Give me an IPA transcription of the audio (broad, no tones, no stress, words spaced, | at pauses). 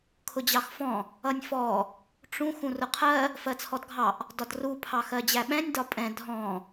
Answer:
kʰʊd͡ʑɑxfɔ̃ | ʌnʲfɔ | ʈ͡ʂũx ũrʊqʰɜ | fɜt͡sʰɔdɡʱɑʔ | dɒdru pʰɑxɜd͡ʑæɓɛ̃nʲ dɒpʼɛ̃ dʱɔ̃